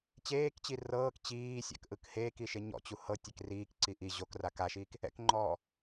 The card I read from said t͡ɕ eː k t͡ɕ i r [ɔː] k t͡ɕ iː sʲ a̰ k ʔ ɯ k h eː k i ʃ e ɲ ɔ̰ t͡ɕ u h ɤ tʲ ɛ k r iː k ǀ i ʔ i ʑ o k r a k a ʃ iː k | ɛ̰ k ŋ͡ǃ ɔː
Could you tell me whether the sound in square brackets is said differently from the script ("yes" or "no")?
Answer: yes